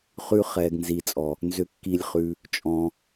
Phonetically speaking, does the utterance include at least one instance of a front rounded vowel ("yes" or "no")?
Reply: yes